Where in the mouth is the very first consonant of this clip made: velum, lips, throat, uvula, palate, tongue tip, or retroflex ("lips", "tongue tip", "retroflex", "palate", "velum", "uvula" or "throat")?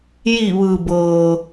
palate